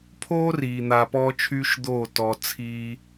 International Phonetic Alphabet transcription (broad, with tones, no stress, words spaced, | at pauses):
pʰoː˦ riː˨ n̪a˧pɔː˦t͡ʃʰyː˦ʃ d̪oː˦˨tɔ˨t͡sʰiː˧